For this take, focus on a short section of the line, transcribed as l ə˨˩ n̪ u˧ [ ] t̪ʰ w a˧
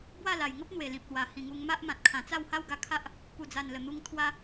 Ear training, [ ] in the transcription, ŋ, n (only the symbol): ŋ